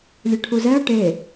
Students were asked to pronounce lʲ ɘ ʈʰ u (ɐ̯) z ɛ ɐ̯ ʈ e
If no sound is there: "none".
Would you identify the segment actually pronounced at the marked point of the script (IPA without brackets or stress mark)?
none